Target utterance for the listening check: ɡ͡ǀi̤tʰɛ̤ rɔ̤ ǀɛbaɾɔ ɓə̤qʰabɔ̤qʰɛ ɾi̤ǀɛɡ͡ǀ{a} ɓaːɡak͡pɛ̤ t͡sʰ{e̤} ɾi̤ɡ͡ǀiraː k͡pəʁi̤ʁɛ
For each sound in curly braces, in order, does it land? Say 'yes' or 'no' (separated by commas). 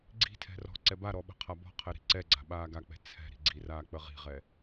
no, no